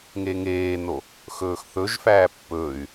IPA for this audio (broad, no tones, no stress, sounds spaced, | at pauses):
ŋ e ŋ eː n o | x ɵː x θ ɵ ʒ f æː pː ɵː y̯